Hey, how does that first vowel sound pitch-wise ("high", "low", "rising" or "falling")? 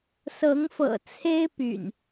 rising